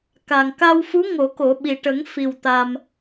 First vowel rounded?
no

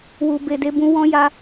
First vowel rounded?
yes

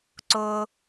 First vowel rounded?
yes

